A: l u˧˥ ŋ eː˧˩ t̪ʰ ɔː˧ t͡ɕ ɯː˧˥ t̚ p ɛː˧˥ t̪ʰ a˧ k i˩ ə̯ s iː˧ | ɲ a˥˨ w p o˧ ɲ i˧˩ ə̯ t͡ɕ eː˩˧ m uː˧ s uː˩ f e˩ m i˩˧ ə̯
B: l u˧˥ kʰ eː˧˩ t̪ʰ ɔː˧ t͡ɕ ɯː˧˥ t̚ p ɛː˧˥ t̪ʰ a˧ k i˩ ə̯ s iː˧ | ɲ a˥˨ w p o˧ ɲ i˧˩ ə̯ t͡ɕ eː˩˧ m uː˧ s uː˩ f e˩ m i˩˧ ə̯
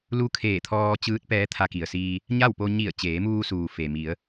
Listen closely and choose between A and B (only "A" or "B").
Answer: B